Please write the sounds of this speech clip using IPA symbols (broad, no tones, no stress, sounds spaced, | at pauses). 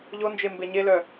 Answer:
ʎ o n d͡ʒ e m b e ɲ e l œ